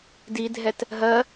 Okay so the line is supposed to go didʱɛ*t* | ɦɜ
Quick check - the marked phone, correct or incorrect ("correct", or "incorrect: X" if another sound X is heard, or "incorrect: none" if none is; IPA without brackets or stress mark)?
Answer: correct